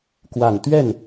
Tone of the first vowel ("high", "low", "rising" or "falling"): low